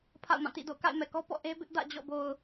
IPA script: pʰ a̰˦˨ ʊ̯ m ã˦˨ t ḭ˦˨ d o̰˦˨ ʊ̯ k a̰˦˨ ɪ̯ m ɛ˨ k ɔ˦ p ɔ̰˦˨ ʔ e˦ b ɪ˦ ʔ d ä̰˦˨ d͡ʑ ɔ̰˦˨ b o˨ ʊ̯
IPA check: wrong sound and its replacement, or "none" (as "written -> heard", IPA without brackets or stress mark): none